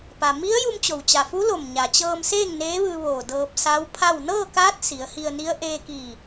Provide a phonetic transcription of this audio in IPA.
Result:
p a˩ m i˧˥ ə̯ j u˧ m t͡ɕ o˧˩ w t͡ɕ a˧˩ f u˧˥ l o˧˩ m ɲ a˩ t͡ɕ ɤː˧ m s eː˥˨ ŋ n eː˧˥ ʋ ɯː˧ ʋ oː˧˩ d ɤː˧ p̚ s a˧˥ w pʰ a˥˨ w n ɤː˥˨ k aː˧˥ t̚ s i˩˧ ə̯ h i˧ ə̯ n i˧˥ ə̯ ʔ eː˧ k iː˧˩

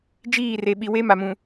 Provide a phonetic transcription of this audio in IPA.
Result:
d͡ʒ iː˦˨ r e˨ ɓ i˨ w e˦ m a˨ m ũ˨

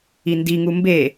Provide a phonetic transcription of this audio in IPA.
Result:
i n d i ŋ u m b e

